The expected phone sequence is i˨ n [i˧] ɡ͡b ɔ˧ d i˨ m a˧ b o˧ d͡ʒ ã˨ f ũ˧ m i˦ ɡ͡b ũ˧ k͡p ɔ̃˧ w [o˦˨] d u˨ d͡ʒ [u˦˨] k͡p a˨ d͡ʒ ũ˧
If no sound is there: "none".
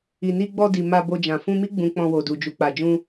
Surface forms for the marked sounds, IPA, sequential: i˧, o˨, u˨

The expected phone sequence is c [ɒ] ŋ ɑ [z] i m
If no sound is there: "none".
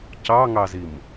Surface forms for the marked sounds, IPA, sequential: ɑ, z

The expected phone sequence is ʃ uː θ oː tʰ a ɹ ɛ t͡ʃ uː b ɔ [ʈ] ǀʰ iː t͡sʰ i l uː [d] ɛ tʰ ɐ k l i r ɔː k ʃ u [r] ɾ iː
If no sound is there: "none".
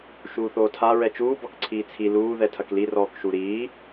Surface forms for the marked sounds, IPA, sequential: k, ð, none

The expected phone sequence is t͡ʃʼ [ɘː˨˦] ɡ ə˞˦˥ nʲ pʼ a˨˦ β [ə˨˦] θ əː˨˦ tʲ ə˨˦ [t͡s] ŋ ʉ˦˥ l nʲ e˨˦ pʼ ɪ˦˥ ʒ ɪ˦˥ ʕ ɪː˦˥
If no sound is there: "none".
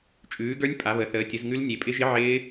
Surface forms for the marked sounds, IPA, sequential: ʉː˨˦, ə˨˦, z

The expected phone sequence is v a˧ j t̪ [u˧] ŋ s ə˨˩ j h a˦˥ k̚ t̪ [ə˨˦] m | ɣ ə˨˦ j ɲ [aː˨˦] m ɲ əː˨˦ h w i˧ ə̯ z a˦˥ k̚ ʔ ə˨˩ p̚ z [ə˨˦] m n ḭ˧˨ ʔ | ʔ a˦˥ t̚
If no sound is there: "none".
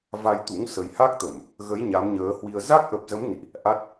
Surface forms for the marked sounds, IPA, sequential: ṵ˧˥, ə˧˩˨, a˨˦, ə˨˦

